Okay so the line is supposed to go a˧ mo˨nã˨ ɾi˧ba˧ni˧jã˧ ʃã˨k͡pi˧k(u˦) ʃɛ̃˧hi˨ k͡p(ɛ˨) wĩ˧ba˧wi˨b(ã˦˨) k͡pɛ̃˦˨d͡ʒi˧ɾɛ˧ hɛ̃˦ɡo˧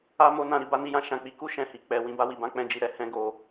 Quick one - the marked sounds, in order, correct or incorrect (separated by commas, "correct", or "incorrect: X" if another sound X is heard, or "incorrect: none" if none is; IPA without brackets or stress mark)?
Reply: correct, correct, incorrect: ã˨˦